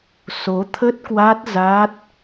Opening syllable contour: rising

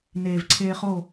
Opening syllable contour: low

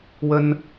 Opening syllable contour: high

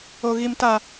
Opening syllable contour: low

